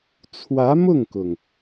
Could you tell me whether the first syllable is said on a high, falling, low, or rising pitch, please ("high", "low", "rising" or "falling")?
rising